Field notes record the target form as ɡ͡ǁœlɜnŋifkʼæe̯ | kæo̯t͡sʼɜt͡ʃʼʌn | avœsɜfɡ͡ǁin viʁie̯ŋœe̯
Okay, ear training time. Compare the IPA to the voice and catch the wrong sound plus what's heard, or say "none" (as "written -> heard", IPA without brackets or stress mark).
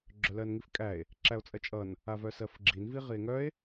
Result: k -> ǁ